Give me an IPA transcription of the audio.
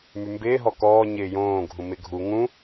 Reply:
m y m b ɪː ɦ ɔ k ɔː ɲ ɪː j õː ɡʱ ũ m ɪ ɡʱ u ŋ ũ

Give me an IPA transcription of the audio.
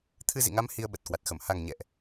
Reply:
t̪ʰ ɨ˧ z ḭ˧˨ ŋ a˨˦ m h i˧ ə̯ ɓ ə˨˩ t̚ k w a˨˩ t̚ x ə˧˩ m h a˨˩ ŋ ɲ ɛ̰˧˨ ʔ

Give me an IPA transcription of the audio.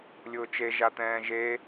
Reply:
lʲ ʊː t͡ʃ e ʒ a t̪ ɛ̃ː ʒ e

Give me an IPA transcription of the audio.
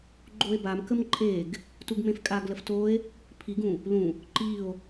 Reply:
ɡ͡ǃ o e̯ b a m k ə m ǃʼ e ɡ | t u ɡ m ẽ f kʼ a ɡ l ə f t o e̯ | pʰ i ɡ ũ | l ũ | ǃ i o̯

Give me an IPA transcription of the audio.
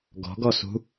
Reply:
ɡ ɔ̤ ɡ ɔ s ṳ

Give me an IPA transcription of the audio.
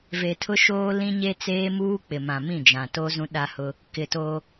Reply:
v e˨ tʰ ʊ˦ ʃ oː˦ l ĩ˦ ɲ e˦ t͡s eː˦ m uː˦ k͡p ɪ˨ m ã˨ m ĩ˦˨ d͡ʒ ã˨ t o˦ z ũ˦ ɗ a˦ h ʊ˦ | k ɪ˨ t o˦

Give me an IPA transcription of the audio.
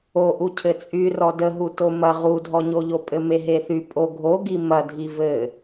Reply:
o ʔ u cʰ ɘ t͡sʼ y r ɔ d ə ɦ u t o m ɐ ʁ u dʱ ɔ ɲ o ʎ o pʼ ɘ m e ɦ e θ y pʼ o ɡʱ o ɡ i m ɐ dʱ i v ɘ

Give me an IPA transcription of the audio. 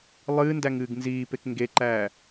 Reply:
lˠ ɨː n d æ ŋ ɨː ɡ n z iː p e k ŋ ɡ e ǃ æː

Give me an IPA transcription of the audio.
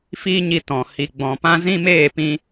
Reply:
f iː˦ ɲ i˧ t ɔ̃˨ h i˨ ɡ͡b ɔ̃˨ p ã˦ z ĩ˦ m eː˦˨ p ĩ˧

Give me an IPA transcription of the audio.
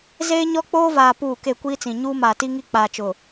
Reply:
z eː˦ ɲ ɔ˦ k͡p oː˦ v aː˨ p uː˦˨ k e˦˨ kʷ iː˦ t͡s ĩ˨ ɲ uː˦ m aː˨ t i˦ ŋ i˦ k͡p aː˨ t͡ʃ ʊ˨

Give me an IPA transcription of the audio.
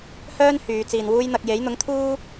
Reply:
h œː˥ n h yː˨˧ t͡s iː˨ n w uː˥ j n̪ ɐ˧ k̚ j e˨˥ j n̪ ʊ˨˥ ŋ t̪ʰ uː˥

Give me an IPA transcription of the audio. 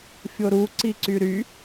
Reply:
fʲ o ɾ u ǀ i ǀ y ɾ y

